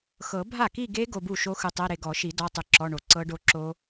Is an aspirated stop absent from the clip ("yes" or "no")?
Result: yes